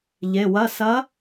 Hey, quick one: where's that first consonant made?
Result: palate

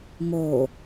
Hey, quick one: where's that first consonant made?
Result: lips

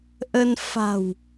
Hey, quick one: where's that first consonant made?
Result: throat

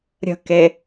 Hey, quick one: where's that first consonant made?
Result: tongue tip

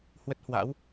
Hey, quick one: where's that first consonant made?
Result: throat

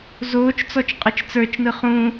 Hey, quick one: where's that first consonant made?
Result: tongue tip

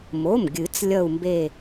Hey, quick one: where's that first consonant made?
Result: lips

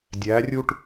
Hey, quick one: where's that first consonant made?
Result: tongue tip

